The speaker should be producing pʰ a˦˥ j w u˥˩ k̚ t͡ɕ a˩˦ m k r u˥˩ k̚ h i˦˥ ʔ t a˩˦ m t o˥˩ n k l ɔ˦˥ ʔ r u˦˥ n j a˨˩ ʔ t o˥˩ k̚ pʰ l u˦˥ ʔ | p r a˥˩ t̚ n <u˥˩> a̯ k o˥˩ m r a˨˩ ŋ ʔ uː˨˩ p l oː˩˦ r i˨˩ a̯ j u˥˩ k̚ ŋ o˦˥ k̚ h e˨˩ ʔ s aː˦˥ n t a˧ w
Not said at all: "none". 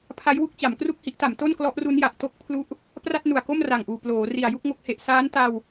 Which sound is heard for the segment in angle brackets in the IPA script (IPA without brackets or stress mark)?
u˨˩